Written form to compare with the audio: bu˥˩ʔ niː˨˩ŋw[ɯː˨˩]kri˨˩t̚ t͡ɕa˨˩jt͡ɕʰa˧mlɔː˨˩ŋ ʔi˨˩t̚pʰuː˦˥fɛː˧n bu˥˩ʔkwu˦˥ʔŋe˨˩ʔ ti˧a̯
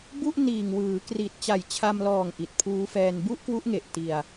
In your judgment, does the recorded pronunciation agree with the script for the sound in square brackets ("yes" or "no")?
no